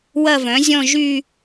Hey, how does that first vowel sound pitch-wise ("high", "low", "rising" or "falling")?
falling